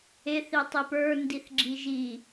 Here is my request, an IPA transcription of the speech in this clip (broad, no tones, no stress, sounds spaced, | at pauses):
e θ i tˤ i p ə˞ n d i θ ɡ͡ǁ i ʒ i